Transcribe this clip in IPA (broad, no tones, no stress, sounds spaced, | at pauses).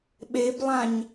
ɓ e b lˠ ã ɲ